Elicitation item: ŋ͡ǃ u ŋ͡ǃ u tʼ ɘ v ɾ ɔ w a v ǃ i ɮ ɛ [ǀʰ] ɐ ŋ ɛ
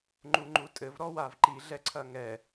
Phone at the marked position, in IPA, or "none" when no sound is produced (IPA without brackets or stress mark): ǀʰ